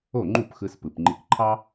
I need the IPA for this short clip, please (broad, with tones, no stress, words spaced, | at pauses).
o˥˩ŋ͡ǃu˥˩pxɯ˧s pɯ˩pŋ͡ǃi˧kǃʰɑ˥